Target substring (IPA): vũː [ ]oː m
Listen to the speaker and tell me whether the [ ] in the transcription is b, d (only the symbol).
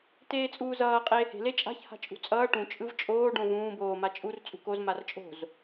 b